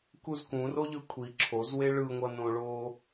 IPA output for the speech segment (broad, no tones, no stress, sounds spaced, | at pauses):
k u z k ũ r o ʎ ɯ kʷʰ i ǁʰ o z w e ɭ ɯ ŋʷ ʌ n õ ɭ o